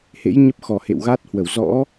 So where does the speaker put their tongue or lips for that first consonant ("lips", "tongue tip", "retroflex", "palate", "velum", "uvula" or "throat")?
throat